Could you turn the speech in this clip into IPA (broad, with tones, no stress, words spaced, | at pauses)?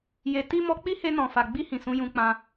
je˧ ti˦ mɔ˧k͡pi˦he˧ nɔ̃˨ fa˨ɡ͡bi˧hĩ˨ sũ˨˦jũ˧k͡pã˧